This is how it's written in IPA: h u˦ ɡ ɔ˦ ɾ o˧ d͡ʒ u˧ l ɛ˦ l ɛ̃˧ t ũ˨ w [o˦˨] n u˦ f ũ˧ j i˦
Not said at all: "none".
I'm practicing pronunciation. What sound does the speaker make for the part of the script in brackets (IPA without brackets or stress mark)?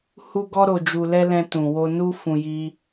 o˧